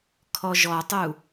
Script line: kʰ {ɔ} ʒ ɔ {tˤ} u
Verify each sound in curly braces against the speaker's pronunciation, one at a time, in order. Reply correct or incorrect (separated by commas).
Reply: correct, correct